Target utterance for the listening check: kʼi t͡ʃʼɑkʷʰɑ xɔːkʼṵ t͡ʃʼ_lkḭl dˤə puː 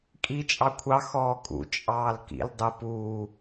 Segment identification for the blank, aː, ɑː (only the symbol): ɑː